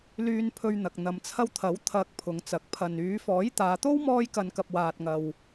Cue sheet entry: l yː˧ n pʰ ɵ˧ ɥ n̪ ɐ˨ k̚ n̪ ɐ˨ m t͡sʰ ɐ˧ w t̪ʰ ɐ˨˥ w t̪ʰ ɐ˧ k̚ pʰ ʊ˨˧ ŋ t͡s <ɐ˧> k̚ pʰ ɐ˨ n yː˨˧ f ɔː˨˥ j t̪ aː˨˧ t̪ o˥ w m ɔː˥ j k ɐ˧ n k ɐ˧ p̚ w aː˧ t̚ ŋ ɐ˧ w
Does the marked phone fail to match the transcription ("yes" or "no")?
yes